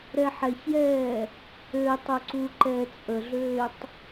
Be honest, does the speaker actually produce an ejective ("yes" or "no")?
yes